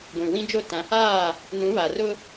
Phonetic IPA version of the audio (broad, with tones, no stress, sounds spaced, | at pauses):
ɡʷ ĩ˨ w ĩ˦ d͡ʒ o˦˨ t ã˨˦ h aː˦˨ | n ũ˨˦ β a˨ r ʊ˦